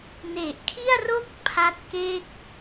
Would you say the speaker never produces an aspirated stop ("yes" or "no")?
no